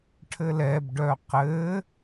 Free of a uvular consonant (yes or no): no